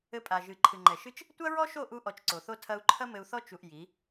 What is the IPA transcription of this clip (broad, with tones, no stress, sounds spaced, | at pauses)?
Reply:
ɘ˧ pʼ a˨ ʒ ɨ˨ ǃʰ ɨ˨ ŋ͡ǃ ɛ˨ ʃ ɨ˦ t͡ʃ | tʷ ɐ˦ ɹ ɔ˦ ʃ o˦˨ ʔ u˧ ʔ ɔ˧ t͡ʃ ǀ o˨ θ o˦ tʰ ɐ˧ u̯ ǃʰ ɐ˦ m ɘ˧ u̯ θ ɔ˦ t͡ʃ u˧ ʔ j i˨˦